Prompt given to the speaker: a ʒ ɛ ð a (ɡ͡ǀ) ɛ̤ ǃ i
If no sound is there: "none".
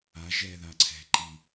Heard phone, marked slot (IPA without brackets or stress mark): ǀʰ